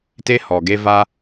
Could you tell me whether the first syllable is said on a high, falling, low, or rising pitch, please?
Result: high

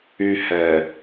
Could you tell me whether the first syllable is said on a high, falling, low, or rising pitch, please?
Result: high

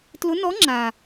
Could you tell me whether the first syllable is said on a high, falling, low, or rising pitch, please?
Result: rising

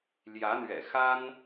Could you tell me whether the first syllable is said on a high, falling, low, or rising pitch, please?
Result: rising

